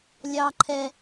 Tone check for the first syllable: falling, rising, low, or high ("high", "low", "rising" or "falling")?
low